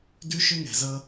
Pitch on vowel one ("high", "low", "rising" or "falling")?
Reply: high